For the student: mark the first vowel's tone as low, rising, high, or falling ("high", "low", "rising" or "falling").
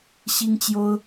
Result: high